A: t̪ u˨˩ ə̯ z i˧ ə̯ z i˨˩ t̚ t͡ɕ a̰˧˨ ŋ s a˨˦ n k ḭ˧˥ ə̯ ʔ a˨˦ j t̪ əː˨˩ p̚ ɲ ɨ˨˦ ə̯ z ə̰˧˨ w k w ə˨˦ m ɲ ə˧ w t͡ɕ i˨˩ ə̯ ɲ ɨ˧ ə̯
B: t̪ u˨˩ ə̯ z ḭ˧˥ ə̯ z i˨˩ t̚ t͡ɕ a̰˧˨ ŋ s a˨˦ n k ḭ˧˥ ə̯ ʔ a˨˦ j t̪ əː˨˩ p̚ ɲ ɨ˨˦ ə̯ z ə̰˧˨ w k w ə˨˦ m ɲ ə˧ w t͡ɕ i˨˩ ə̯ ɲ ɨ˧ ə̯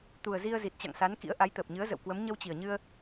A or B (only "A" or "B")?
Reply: A